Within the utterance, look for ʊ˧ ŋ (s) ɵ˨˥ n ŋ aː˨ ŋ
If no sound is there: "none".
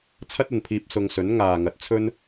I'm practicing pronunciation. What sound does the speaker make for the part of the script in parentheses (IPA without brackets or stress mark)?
s